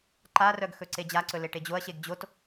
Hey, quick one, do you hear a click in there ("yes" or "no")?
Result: yes